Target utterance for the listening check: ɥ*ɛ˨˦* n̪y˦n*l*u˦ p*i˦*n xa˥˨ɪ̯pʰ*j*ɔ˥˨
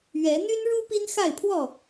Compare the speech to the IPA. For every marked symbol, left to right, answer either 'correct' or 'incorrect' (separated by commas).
correct, incorrect, correct, incorrect